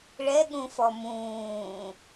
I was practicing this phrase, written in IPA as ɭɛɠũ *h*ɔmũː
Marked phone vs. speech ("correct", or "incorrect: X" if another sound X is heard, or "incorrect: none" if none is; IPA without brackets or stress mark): incorrect: f